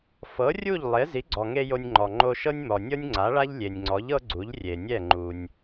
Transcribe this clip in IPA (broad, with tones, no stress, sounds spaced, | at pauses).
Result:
f ɤ˩˥ rʲ u˥˩ ʎ lˠ e˩˥ z i˩˥ ɡ͡ǀ ɔ˩ ŋ e˧ j o˧ nʲ ŋ͡ǃ ɔ˩ ŋ͡ǃ o˧ ʃ ɤ˥ nʲ m ɔ˩ nʲ ɤ˥ nʲ ŋ͡ǀ a˩˥ ɭ a˥ ʎ lʲ e˩ nʲ ŋ͡ǀ ɔ˩˥ ʎ ɤ˥ ɡ͡ǀ u˩˥ ʎ rʲ e˩ nʲ ɛ˥˩ ŋ͡ǃ u˩ nʲ